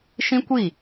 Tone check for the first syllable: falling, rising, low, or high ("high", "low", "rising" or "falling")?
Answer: high